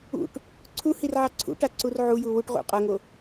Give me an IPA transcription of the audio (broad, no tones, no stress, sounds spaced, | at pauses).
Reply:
ṵ ʈ | ǀʰ u h i r ʕ ɑ ǀʰ ṵ ʈ a ǀ u r ʕ u j u w u ʈ ʁ ṵ qʼ ɤ ŋ o